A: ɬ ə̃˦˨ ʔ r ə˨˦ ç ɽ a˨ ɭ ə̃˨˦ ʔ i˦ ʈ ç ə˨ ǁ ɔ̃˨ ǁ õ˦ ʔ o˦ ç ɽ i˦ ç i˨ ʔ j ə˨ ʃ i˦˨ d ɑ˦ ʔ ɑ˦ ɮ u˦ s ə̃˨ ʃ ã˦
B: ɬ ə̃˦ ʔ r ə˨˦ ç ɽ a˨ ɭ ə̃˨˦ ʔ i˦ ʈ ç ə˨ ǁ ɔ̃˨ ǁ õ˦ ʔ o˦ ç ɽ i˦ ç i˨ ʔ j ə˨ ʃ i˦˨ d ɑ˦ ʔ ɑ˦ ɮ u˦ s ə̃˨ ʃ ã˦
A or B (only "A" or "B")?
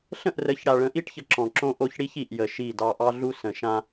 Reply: A